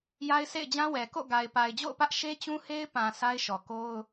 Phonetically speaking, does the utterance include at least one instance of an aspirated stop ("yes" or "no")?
no